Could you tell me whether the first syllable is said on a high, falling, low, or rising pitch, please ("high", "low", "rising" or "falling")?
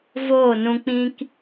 falling